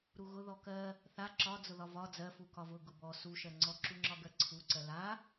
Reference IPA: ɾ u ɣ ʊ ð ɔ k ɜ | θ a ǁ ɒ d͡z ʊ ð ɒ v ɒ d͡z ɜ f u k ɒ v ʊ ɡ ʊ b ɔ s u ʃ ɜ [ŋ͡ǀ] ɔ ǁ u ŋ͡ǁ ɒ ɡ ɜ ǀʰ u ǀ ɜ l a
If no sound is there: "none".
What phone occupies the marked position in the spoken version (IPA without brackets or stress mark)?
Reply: ŋ͡ǀ